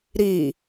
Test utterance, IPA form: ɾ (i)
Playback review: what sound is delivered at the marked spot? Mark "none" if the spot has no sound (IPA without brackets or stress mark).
i